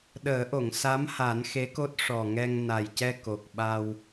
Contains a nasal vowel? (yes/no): no